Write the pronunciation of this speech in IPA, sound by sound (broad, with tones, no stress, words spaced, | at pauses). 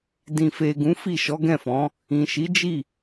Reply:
dĩ˨fe˨ ɡũ˨˦fi˦˨ ʃɔ˨˦ɡɛ̃˦˨fɔ̃˨˦ | ĩ˨ʃi˨˦d͡ʒi˦˨